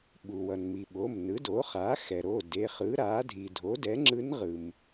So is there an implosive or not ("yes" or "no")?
yes